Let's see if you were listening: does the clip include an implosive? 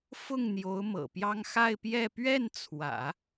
no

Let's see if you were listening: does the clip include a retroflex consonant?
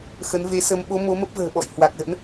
no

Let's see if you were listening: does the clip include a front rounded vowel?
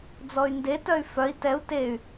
yes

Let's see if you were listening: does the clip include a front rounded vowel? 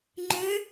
yes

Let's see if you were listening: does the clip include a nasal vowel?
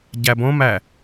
yes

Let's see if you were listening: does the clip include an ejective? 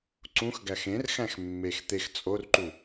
yes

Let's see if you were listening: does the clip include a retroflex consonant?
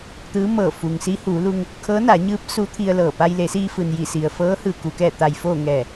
no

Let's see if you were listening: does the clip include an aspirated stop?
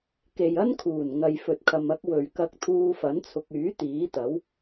yes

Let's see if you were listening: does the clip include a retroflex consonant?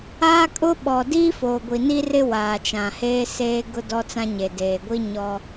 no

